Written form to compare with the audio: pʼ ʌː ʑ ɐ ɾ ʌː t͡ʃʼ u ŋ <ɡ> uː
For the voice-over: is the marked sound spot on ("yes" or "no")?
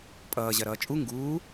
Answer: yes